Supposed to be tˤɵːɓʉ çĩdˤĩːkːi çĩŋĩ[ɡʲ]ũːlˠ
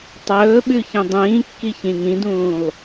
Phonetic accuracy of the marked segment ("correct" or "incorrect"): incorrect